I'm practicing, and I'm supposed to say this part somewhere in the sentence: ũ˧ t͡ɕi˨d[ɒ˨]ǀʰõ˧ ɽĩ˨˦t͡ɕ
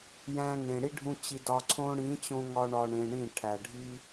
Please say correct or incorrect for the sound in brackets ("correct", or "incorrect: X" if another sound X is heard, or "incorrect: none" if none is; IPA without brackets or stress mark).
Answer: correct